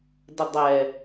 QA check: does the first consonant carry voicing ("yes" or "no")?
yes